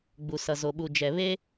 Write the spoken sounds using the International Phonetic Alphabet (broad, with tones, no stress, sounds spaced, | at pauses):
ɡ͡b u˨ s ʌ˨ z o˨ ɓ u˨ d͡ʒ ɛ˨ β e˦